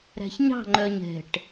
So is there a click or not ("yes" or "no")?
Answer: yes